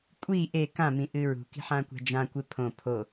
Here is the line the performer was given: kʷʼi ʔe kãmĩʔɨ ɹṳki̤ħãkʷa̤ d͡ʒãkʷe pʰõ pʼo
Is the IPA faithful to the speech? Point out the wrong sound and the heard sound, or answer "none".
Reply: pʼ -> pʰ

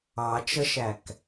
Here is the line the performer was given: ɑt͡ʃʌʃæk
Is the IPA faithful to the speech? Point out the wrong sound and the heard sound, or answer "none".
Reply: none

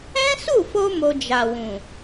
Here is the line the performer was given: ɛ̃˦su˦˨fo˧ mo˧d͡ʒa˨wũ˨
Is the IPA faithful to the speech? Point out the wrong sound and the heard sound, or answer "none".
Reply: none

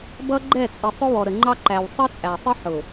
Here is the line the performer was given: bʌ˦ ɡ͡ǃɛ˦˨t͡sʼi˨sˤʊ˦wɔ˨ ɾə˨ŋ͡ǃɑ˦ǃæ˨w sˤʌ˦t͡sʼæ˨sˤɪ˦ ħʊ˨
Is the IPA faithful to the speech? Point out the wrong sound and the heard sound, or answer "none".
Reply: none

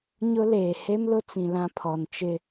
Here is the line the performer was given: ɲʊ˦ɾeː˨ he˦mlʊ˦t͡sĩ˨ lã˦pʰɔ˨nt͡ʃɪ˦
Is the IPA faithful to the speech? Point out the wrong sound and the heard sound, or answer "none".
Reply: ɾ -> l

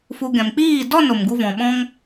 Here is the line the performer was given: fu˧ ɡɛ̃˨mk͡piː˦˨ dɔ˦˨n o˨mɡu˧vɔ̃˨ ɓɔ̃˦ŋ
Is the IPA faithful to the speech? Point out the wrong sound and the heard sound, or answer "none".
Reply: none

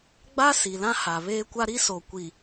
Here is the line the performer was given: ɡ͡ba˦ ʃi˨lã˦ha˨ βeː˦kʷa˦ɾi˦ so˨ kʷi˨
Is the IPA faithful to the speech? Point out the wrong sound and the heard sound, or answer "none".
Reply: ʃ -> s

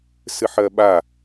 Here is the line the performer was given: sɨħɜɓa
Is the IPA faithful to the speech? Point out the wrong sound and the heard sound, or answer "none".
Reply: none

